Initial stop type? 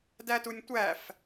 plain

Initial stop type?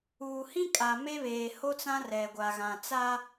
ejective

